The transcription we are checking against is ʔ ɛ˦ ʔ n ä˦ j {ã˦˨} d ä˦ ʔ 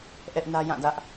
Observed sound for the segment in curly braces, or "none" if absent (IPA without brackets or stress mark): ã˦˨